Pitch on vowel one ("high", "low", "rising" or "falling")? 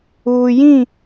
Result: low